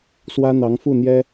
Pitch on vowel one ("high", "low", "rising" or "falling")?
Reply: high